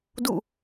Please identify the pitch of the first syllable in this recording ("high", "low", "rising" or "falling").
falling